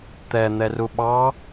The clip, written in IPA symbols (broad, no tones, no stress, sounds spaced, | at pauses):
t̪ ɛ n̪ ɛ r u ɓ ɑ